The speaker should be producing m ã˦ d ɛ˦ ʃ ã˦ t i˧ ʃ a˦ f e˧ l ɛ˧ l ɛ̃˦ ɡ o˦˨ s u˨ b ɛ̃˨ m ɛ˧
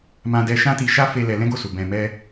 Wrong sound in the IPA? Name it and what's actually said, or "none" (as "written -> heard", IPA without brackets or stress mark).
none